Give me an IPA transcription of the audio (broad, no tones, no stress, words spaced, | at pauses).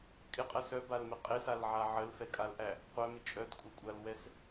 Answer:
kʼɪqʼɜ sœbalmɪ qʼɪsalʕa ʕəlfɛkʼalʔæ | qʷœmɪ t͡ʃʼœdkʷʼɛkʷʼalwɛs